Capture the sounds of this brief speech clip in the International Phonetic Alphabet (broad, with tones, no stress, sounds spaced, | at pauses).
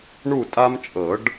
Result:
ɳ u˦˨ tʼ a˦ m t͡ʃʼ ɤ˨˩˦ ɖ